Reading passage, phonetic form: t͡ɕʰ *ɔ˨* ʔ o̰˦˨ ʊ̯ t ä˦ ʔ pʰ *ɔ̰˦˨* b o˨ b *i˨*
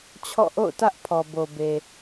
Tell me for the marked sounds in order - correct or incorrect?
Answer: incorrect: ɔ̰˦˨, incorrect: ɔ˨, incorrect: e˨

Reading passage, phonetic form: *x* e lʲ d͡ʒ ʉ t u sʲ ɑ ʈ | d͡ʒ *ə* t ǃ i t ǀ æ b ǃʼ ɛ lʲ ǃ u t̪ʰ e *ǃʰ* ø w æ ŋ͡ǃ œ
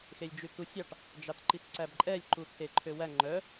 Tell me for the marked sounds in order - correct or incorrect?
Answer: correct, incorrect: ɑ, correct

